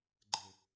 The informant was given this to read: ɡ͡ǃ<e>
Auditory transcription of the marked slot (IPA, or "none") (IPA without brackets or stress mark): e